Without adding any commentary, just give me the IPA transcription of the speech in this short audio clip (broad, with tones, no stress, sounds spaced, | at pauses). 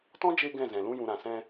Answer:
t ɔ̃˦ d͡ʒ e˧ ɡ ɛ̃˦˨ z ɛ̃˨ l ũ˧ j ũ˨ ɾ ã˨ s ɛ̃˧